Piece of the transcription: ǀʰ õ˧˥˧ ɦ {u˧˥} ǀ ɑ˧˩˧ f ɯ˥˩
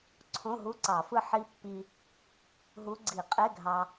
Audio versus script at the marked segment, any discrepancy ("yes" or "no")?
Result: yes